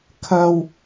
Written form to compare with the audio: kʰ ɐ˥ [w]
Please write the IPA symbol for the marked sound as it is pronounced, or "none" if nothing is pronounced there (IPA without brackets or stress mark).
w